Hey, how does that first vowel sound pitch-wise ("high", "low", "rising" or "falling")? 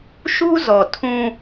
high